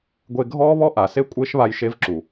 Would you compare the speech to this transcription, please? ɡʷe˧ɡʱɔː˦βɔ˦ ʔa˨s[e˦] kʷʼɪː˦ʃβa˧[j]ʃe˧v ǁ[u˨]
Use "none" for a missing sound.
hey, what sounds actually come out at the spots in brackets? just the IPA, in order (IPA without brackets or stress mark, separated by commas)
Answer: e˦, j, u˨